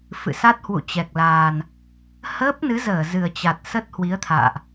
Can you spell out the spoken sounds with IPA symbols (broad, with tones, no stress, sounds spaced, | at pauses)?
f ɨ̰˧˨ s a˦˥ t̚ h w ṵ˧˨ t͡ɕ ɛ˨˩ k̚ l aː˨˩ n | h əː˦˥ p̚ n ɨ˨˦ z əː˧˩ z ɨ˨˩ ə̯ t͡ɕ a˨˩ t̚ s ə˦˥ t̚ h w i˨˦ ə̯ t̪ʰ a̰ː˧˨ ʔ